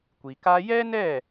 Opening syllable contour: low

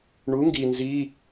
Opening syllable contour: rising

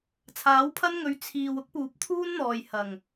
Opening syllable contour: rising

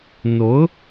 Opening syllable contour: rising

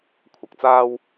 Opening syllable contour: low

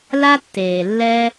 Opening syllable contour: high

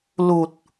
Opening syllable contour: low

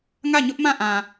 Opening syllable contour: falling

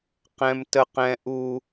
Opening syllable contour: high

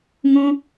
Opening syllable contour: high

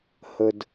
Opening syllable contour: low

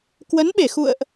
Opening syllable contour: rising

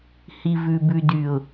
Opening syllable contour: low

